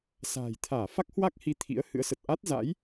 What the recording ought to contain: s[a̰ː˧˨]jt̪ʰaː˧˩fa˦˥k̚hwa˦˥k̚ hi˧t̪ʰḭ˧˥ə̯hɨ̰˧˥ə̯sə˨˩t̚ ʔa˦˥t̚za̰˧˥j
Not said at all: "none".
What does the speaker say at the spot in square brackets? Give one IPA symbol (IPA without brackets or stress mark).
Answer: a̤ː˨˩